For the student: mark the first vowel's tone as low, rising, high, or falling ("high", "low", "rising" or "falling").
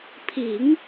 low